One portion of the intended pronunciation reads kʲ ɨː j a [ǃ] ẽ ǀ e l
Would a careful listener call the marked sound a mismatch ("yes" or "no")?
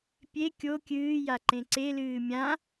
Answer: no